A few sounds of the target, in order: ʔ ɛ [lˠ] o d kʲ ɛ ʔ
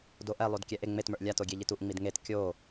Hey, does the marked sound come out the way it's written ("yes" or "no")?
yes